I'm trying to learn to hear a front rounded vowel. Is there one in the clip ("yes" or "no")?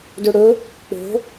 no